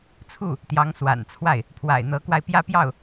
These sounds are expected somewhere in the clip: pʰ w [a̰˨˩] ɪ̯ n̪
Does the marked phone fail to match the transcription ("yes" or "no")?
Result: no